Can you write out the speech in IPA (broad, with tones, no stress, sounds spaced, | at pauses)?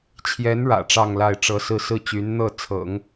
t͡ɕʰ j ɛ˧˥ n ɻ ä̰˨˩ ʈ͡ʂ ɑ˥˧ ŋ l a˥˩ ɪ̯ ʈ͡ʂ ɤ˥ s ɹ̩˥˧ s ɹ̩˥˩ t͡ɕ y˧˥ n n̪ ɤ˥˩ t͡sʰ ɤ̰˨˩˦ ŋ